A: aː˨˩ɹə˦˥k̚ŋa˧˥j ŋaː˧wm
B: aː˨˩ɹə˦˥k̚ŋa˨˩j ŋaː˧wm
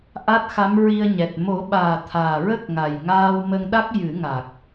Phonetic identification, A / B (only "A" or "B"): B